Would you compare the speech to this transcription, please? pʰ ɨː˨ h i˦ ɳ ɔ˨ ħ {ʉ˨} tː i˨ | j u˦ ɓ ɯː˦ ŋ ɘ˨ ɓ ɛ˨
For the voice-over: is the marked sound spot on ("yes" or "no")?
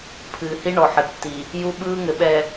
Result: no